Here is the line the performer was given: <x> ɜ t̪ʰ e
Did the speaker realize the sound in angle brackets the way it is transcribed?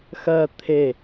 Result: yes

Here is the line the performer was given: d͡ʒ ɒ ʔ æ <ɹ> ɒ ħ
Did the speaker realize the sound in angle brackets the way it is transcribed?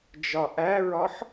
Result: yes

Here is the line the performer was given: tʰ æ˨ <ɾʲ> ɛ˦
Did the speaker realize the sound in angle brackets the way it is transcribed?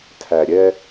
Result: yes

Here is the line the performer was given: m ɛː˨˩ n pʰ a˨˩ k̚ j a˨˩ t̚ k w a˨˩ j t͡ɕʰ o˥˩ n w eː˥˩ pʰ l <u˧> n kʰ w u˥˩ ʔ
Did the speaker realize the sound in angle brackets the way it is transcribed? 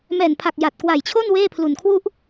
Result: no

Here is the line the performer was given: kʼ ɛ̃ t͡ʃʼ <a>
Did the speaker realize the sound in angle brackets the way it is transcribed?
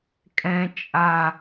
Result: yes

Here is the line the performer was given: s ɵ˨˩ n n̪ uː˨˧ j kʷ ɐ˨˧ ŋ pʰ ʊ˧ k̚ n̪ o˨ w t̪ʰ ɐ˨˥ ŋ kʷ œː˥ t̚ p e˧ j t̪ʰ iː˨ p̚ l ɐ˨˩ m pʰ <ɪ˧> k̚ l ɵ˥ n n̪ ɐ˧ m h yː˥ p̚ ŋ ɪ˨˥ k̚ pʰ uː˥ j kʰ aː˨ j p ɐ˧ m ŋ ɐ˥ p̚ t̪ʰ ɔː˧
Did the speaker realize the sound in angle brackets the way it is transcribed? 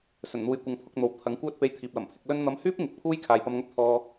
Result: yes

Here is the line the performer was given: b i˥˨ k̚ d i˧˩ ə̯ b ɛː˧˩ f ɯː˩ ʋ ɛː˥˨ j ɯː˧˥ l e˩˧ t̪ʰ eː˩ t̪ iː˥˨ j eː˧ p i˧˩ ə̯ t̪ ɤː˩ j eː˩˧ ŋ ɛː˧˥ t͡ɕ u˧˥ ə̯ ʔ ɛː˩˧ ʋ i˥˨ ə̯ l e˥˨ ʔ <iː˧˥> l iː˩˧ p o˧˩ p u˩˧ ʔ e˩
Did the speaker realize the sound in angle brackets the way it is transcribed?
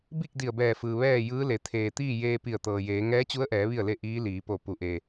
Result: yes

